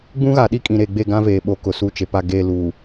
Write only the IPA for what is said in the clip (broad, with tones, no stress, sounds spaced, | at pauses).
ɡ͡b ũ˦ ɣ a˨ ɗ i˦ kʼ ĩ˨ ɾ e˨ ɡ͡b e˦˨ ɡ ã˦ v eː˨ ɓ o˨ k ʊ˨ s u˦˨ t͡ʃ e˨ p a˦˨ ɡ e˦˨ l u˨